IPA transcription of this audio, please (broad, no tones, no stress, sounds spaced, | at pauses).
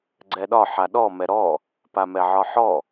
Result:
ɡ͡ǀ ɛ ɗ ɒ ħ a ɗ ɔ m ɛ ɾ ɔ | p a m ɛ ʕ ɒ ħ ɔ